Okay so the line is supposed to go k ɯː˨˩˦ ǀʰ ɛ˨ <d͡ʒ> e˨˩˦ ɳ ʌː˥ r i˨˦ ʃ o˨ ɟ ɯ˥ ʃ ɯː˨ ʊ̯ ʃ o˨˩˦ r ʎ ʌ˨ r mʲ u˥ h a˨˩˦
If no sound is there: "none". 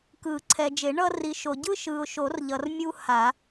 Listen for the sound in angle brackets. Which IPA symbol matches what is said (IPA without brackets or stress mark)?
d͡ʒ